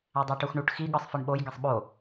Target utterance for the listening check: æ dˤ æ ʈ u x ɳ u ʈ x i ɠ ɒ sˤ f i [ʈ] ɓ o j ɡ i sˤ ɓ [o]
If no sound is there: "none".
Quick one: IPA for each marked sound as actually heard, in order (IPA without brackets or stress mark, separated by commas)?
ɳ, o